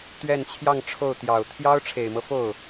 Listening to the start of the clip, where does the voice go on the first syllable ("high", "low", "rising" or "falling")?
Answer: falling